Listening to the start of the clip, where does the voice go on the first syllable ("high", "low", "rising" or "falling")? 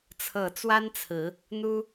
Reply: falling